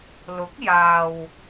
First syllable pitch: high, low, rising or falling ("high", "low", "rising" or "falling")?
rising